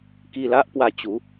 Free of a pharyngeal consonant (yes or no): yes